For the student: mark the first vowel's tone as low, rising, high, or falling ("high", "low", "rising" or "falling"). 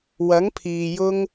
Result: rising